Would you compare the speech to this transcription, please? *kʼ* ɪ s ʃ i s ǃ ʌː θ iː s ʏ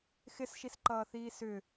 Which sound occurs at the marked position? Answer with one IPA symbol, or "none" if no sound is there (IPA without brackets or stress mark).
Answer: x